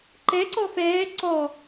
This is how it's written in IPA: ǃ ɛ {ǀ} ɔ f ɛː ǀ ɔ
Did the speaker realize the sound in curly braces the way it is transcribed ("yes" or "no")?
yes